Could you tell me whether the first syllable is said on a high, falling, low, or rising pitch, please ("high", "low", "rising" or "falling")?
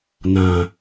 low